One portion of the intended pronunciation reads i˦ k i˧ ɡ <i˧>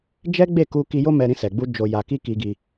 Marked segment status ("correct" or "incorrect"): correct